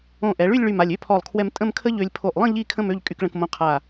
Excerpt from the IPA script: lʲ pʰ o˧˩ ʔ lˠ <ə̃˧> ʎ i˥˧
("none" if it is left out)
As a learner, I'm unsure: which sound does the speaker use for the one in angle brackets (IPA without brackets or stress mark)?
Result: ə̃˥˧